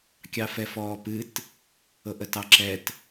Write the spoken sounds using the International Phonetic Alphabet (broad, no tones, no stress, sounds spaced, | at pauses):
kʲ ɑ f ɛ f ɔː p ɨ t | ɤ ʔ ə t ɑ ǁ ɛ t